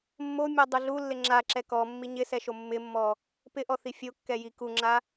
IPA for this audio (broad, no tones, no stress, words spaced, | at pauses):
mːomʲɔdˤu ɮulːɪ ŋ͡ǁaǁɛ kɔmːi ɲɪsɛʃo mːɪmːɔ | pɪʔɔθi fʲokːɛji kuŋ͡ǁa